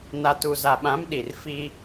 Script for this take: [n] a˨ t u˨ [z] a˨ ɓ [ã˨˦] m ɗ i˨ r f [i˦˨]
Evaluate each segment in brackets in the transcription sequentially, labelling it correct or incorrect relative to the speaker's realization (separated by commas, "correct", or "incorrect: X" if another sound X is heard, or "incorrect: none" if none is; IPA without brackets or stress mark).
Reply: correct, correct, correct, incorrect: i˦